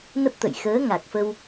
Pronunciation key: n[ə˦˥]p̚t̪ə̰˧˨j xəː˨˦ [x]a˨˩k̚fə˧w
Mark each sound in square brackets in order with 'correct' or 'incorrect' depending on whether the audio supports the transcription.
correct, incorrect

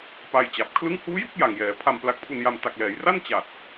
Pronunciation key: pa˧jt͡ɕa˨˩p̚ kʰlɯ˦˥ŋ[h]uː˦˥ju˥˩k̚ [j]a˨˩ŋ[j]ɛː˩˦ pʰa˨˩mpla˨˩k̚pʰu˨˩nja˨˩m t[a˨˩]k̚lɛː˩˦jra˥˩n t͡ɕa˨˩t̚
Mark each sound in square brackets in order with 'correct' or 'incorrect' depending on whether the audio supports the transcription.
correct, correct, correct, correct

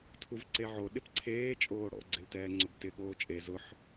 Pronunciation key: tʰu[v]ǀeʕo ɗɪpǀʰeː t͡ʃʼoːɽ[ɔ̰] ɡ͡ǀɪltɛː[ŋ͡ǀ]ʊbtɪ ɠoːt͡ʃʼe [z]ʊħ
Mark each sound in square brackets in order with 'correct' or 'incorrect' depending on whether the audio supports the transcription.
correct, correct, correct, correct

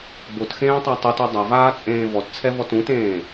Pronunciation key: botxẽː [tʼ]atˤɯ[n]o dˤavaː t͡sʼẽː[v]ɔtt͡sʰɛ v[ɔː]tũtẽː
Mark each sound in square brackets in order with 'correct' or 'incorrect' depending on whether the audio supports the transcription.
incorrect, incorrect, correct, incorrect

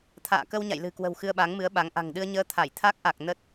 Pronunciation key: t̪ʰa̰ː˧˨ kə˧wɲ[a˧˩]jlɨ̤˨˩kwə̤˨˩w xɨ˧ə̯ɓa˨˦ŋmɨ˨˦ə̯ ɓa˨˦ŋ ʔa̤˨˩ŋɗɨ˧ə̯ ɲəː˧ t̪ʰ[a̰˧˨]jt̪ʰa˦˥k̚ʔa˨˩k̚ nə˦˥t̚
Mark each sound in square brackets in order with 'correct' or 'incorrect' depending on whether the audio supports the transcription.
incorrect, incorrect

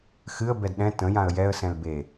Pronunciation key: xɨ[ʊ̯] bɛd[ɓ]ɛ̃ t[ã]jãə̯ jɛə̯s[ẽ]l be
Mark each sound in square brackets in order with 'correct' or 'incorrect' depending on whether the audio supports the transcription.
incorrect, incorrect, incorrect, incorrect

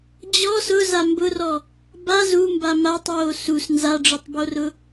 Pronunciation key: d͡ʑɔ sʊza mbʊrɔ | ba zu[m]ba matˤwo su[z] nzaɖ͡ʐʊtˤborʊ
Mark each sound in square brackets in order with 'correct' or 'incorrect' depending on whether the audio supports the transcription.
correct, incorrect

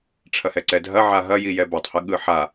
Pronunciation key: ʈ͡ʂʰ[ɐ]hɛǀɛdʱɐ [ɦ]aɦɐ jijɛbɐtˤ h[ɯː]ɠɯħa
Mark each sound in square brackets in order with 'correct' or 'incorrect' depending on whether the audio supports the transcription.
correct, incorrect, incorrect

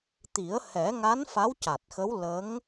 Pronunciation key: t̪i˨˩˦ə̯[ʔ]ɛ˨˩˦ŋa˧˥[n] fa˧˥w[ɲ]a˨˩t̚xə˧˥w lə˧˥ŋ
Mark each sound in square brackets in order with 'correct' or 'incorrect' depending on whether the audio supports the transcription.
incorrect, correct, incorrect

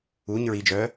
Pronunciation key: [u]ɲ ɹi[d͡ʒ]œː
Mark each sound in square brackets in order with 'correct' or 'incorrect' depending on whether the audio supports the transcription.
correct, correct

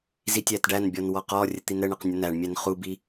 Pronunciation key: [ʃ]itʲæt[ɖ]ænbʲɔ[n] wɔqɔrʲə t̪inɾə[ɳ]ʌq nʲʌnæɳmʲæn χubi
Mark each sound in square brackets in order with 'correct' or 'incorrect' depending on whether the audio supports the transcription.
incorrect, correct, correct, correct

